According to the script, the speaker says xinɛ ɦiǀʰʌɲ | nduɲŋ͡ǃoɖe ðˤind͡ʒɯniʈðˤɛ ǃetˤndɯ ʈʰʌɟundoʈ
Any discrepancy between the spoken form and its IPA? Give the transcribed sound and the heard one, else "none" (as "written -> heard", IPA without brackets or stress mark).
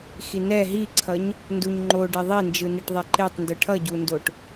none